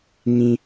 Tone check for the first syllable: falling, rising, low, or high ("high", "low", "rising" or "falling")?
low